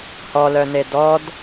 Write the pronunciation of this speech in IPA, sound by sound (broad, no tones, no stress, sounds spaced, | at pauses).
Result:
h ɔ l œ n e d ɔ d